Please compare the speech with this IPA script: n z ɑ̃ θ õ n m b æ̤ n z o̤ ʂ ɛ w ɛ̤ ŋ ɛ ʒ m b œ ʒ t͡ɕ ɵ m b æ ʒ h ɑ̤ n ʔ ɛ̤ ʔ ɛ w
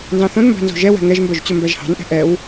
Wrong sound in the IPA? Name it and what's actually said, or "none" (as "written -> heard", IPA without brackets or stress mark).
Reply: ʂ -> ʒ